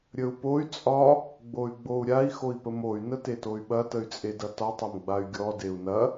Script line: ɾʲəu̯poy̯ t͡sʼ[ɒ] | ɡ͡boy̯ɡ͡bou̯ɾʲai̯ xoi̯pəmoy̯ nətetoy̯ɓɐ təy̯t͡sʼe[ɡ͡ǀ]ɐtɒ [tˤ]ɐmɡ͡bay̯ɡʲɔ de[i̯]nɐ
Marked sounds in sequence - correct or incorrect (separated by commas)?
correct, incorrect, correct, incorrect